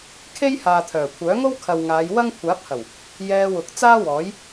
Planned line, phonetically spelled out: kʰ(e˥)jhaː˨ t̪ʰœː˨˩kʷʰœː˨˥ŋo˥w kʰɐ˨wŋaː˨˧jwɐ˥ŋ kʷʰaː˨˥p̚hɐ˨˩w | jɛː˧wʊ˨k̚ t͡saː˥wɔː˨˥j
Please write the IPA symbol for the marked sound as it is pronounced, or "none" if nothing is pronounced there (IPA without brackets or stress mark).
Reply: e˥